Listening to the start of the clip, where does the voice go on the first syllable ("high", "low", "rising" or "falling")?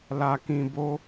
low